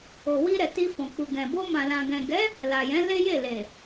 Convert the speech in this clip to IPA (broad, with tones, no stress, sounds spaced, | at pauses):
o˨ w i˧ ɾ ɛ˨ t i˧ f ɔ̃˨ k͡p u˨ ɡ ɛ̃˨ b o˧ m ã˨ l ã˨ ɡ ɛ̃˨ ɡ ɛ˨˦ | l a˨ j ɛ̃˨˦ l e˦ j e˦˨ l e˨